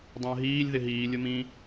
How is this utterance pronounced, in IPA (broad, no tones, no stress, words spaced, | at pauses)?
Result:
dˤə̃ːɦiːlʲ ðɪɦiː lʲʊmĩ